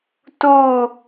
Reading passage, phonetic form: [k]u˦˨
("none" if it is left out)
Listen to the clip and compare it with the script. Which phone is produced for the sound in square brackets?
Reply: t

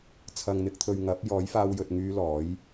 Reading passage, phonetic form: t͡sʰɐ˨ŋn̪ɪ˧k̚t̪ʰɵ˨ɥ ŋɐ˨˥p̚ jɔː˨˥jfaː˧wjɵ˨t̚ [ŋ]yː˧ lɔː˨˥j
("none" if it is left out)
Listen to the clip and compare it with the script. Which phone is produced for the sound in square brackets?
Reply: ŋ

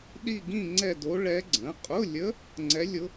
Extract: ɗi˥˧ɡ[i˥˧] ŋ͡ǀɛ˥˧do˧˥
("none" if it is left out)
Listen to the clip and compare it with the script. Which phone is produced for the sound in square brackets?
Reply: ĩ˥˧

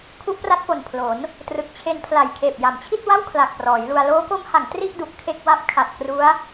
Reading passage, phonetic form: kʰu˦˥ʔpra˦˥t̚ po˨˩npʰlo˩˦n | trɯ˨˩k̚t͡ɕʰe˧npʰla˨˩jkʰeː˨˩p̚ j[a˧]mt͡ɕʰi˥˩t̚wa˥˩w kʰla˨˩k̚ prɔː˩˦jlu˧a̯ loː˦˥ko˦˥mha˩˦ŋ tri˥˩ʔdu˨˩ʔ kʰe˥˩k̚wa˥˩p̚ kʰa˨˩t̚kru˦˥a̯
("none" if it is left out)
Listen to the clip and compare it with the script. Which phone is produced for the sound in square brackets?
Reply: a˩˦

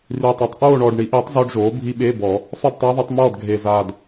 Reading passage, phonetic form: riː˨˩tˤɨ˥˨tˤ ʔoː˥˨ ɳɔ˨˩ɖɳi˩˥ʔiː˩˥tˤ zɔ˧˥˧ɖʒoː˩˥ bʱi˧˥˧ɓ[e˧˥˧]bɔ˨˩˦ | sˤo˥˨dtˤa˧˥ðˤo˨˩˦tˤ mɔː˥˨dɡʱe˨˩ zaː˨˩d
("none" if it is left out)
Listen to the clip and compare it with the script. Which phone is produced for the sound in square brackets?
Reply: e˧˥˧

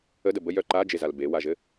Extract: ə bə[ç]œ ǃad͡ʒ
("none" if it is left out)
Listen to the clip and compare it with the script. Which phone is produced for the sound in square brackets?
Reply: j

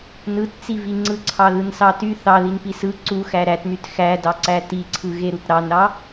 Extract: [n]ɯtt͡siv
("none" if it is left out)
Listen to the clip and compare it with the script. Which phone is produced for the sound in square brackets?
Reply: n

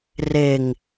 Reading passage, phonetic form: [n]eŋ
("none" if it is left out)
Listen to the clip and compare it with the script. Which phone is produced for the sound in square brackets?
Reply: r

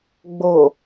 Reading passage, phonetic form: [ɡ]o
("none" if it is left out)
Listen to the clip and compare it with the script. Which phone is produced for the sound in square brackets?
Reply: ɡ͡b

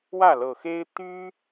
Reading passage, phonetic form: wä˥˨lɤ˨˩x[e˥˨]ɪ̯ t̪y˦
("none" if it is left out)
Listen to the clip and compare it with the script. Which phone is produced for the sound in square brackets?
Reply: e˦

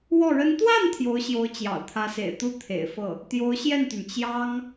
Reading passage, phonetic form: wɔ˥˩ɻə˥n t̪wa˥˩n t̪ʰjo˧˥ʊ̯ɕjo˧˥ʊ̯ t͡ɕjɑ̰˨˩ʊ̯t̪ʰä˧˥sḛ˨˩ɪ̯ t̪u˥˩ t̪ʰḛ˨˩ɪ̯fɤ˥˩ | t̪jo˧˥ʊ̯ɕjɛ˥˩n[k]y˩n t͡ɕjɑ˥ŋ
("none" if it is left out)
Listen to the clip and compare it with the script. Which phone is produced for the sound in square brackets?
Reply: t̪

